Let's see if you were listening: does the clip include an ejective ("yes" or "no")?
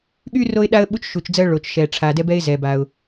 no